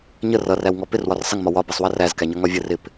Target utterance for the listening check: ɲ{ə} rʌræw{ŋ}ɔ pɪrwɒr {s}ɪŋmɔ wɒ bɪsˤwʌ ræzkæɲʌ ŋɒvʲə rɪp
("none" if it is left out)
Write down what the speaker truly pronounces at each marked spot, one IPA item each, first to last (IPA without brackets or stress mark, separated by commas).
ə, ŋ, sˤ